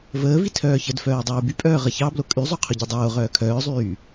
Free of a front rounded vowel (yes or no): no